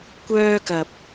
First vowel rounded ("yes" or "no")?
yes